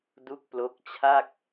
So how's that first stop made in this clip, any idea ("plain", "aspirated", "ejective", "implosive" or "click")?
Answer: plain